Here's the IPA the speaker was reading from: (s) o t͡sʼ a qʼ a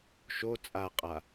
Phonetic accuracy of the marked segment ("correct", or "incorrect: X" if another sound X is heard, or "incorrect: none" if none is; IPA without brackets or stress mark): incorrect: ʃ